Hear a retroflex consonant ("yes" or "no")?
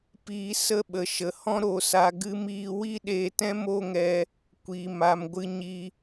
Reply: no